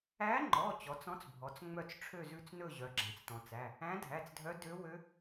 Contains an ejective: no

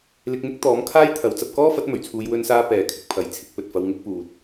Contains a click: no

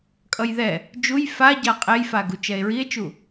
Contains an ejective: yes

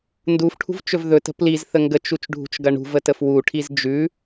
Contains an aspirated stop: yes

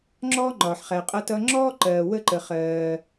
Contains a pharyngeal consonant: yes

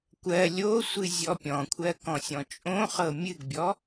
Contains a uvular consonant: yes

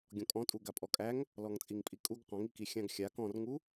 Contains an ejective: yes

